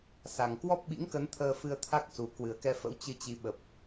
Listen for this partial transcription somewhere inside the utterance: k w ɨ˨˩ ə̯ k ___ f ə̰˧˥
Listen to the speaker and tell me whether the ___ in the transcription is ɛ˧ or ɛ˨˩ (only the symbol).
ɛ˧